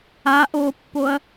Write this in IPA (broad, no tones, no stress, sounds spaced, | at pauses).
a ʔ o pː o ɐ̯